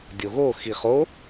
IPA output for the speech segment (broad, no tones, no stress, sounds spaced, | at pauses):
dʲ o ɣ o x i χ o